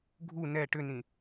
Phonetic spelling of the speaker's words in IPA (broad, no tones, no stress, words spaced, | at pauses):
ɡʱu nɛ ʈʏnĩ